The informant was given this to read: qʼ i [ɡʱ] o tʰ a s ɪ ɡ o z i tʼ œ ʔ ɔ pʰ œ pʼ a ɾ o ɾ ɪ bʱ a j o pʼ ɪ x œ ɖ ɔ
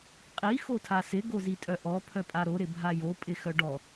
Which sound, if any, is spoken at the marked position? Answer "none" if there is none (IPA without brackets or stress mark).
x